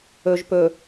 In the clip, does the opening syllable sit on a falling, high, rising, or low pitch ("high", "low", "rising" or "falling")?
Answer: low